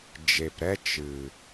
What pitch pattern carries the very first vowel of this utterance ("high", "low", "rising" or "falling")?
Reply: low